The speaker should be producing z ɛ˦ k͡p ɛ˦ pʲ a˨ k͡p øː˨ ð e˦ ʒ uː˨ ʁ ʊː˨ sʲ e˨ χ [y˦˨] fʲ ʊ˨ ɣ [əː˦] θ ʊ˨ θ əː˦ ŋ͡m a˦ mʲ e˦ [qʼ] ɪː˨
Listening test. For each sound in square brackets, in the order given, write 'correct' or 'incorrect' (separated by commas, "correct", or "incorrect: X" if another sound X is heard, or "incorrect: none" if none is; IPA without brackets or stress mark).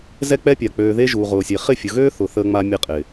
incorrect: ɪ˦˨, incorrect: øː˦, correct